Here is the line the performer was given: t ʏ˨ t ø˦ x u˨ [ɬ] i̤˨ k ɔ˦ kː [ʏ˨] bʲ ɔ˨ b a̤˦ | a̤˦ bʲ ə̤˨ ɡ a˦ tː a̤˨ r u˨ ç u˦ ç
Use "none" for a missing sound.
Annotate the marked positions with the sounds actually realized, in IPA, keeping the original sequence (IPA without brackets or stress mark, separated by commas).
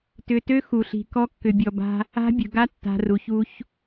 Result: ɬ, ʏ˨